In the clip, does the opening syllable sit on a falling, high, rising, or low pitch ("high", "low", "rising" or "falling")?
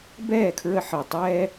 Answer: falling